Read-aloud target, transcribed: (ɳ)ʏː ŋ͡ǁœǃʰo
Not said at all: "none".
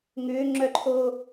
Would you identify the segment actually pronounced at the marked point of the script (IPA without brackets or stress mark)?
ŋ